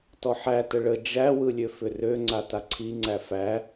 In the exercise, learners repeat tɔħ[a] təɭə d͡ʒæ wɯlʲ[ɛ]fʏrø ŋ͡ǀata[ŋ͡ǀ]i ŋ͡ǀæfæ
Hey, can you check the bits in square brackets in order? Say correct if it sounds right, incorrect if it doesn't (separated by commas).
incorrect, incorrect, incorrect